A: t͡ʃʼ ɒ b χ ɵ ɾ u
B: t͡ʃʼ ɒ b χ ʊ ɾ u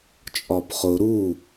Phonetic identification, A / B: B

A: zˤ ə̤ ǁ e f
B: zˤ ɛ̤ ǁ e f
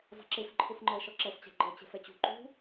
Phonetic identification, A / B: B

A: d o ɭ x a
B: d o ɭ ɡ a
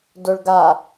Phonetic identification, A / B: B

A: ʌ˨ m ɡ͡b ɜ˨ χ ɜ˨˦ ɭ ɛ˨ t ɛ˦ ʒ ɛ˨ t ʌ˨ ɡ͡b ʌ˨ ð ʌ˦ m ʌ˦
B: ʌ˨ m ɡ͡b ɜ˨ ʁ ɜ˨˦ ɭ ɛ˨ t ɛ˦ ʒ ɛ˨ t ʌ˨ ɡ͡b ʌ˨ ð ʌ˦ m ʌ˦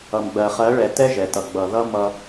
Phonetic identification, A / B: A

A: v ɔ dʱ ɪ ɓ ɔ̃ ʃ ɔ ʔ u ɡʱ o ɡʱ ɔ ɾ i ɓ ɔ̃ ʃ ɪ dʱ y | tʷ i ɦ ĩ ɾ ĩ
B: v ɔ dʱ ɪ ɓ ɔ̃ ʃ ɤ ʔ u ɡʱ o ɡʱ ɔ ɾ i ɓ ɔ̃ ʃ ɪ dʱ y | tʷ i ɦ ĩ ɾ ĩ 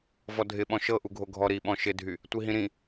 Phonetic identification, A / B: B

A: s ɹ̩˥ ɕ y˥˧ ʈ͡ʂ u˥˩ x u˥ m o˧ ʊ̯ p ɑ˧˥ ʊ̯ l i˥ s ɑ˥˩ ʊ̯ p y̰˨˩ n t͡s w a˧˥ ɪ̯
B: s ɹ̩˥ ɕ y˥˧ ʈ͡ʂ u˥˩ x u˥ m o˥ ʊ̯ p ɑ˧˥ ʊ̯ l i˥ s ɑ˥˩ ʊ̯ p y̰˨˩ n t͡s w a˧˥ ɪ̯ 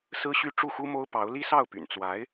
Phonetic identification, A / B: B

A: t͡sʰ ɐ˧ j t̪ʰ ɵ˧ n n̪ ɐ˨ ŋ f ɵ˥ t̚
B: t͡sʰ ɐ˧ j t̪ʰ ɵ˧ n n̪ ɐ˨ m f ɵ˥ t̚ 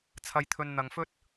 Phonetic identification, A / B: A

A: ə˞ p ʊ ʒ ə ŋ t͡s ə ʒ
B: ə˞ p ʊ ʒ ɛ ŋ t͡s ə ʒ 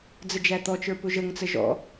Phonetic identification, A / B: A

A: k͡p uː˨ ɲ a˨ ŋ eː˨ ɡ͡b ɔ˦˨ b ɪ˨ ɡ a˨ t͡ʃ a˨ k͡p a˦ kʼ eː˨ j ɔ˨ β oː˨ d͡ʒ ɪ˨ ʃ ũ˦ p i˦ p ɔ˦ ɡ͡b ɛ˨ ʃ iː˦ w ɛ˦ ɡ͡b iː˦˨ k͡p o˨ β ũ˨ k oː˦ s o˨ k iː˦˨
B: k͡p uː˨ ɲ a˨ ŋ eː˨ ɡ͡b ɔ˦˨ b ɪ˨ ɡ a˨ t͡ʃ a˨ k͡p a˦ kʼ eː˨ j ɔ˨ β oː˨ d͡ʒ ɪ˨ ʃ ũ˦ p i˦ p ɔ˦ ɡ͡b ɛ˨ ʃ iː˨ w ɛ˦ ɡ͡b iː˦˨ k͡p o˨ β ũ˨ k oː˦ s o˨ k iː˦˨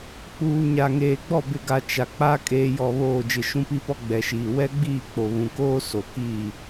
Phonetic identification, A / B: B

